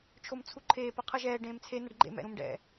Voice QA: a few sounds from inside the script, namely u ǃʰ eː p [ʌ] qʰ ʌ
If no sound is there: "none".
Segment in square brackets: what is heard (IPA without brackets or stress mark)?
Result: ʌ